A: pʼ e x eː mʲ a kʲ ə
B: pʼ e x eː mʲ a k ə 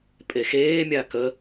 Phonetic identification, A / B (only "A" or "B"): B